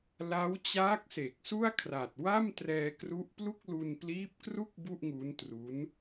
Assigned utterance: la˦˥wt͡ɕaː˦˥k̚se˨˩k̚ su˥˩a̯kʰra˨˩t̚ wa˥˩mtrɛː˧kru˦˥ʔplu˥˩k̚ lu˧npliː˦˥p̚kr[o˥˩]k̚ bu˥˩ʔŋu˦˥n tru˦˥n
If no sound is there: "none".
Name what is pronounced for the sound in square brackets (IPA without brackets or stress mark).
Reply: u˥˩